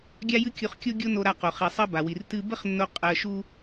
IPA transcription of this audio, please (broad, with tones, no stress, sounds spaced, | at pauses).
ɡʲ a˥ j ɨ˥ kʲ u˧ χ kʲ o˥ ɡʲ o˥ n o˧ ɾ a˧ q o˩ χ i˩ sˤ ɜ˥ b a˩ w i˩ r t ɨ˧ b ə˥ χ nː o˧ qʼ ɜ˧ ʃ u˥